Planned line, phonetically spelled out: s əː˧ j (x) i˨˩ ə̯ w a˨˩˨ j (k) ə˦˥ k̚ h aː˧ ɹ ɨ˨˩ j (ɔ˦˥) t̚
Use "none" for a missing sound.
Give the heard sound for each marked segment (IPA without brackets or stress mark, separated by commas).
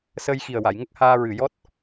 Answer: x, ŋ, ɔ˦˥